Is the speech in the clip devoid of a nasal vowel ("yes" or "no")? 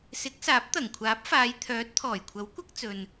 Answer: yes